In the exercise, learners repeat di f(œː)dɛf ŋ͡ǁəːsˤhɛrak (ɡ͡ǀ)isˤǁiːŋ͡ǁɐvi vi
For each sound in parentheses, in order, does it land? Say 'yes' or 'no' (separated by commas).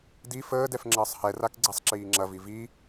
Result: no, yes